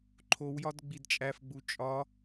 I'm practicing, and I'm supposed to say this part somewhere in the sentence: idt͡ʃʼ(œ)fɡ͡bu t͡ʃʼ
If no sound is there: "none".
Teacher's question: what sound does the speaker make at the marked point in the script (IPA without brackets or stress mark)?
æ